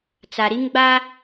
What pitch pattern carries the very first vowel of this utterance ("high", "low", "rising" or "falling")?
low